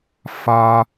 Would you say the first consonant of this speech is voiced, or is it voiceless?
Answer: voiceless